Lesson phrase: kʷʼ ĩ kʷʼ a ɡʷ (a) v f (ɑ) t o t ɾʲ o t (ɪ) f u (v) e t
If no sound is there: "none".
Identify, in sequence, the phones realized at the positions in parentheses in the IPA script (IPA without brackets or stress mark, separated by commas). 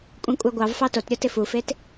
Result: ɑ, ɑ, ɪ, f